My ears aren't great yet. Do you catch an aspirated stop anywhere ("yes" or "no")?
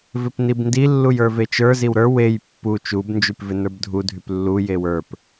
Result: no